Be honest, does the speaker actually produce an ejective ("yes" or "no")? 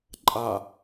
yes